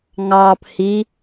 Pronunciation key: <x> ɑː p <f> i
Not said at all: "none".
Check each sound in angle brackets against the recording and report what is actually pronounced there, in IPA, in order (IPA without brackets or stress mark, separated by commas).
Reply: ŋ, h